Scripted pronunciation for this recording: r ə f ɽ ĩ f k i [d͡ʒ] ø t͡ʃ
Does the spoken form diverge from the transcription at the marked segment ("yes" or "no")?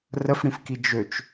no